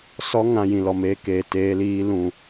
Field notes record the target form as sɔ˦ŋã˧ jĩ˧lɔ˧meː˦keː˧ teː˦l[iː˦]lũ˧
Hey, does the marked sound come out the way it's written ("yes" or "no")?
yes